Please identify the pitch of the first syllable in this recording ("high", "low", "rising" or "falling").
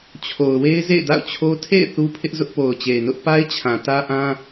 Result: low